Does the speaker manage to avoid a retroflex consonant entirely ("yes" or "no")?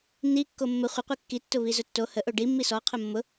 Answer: no